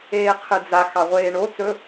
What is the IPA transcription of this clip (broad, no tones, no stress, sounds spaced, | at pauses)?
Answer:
eː qʰ ɨ d͡z a x ɑ ʁʷ eː ɳ o t͡s ɵ